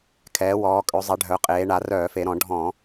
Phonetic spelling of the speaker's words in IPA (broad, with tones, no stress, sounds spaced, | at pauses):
kʰ ɛː˩˧ w ɔː˩˧ kʼ ø˩˧ zˤ ɛ˩˧ ɖʱ œ˩˧ qʼ eː˩˧ ɳ a˩˧ r œː˧˩˧ f e˩˧ ɾ ɔ̃˧˩˧ ɖʱ ɔ̃˧˩˧